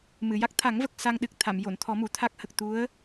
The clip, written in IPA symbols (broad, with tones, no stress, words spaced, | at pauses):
mɨ˨˩˨ja˦˥k̚ t̪ʰa˨˩˦ŋvə˨˩k̚ sa˧ŋɗɨ˨˩k̚ t̪ʰa˨˩˨mjo˨˩˨n t̪ʰɔ˨˩˦ mu˨˩˨t̪ʰa˦˥k̚ hə˨˩k̚ t̪u˧˥ə̯